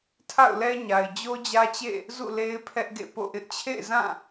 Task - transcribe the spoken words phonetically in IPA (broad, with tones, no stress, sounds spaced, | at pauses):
tʰ a̰˦˨ ʊ̯ l ɛ˦ ɲ a˨ ɪ̯ d͡ʑ o˦ d͡ʑ ä˦ t͡ɕ ḛ˦˨ | z ṵ˦˨ l e˦ ɪ̯ pʰ ɛ˦ ʔ ɡ ḛ˦˨ p o̰˦˨ ʔ ɪ˦ ʔ t͡ɕʰ ḛ˦˨ ɪ̯ z ã˦˨